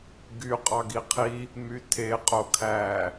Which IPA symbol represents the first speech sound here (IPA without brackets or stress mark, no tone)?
ɡ